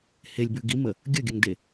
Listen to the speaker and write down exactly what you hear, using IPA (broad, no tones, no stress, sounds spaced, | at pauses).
h e lʲ b ʉ ɡ i m ə | ɡʲ ə ɡʲ ə ŋ d e